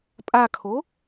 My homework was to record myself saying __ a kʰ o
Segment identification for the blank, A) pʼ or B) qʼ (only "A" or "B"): A